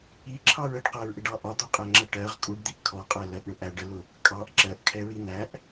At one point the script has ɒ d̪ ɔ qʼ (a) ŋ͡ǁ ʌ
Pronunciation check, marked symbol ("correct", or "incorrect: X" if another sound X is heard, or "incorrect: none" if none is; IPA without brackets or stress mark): incorrect: æ